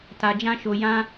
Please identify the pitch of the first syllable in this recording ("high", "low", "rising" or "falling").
low